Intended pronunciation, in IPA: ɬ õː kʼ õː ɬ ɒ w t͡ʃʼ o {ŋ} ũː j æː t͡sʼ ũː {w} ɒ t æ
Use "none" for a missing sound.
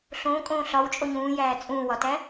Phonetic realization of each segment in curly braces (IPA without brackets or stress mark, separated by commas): ɲ, w